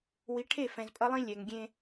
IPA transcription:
wi˨˦ ʈʰe˦˨fɛ̃˨zpʼʌ˦lˠĩ˦ lʲɛ˨ŋɡʲẽ˦

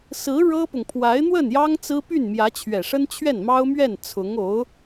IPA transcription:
sɹ̩˧˥ ɻɤ˥pʊ˨ŋ pʰwa˧˥ɪ̯n̪wə˥˩njɑ˥ŋ t͡sɹ̩˥ py˥˩nmjä˧˥t͡ɕʰɥɛ˨˩ʂə˥n t͡ɕʰɥɛ˥˩nmɑ˥ʊ̯mɥɛ˥˩n t͡sʰʊ˧˥ŋo˧˥ʊ̯

